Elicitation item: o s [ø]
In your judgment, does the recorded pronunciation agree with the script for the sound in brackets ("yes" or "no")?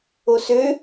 yes